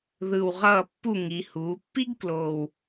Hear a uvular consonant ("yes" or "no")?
yes